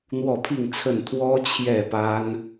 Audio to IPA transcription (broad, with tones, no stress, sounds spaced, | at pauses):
n̪ w ɔ˥˨ pʰ i˥˨ ŋ t͡sʰ ə˥˨ n t̪ʰ w ɔ˦ t͡ɕʰ j ɛ˥˨ p a˦ n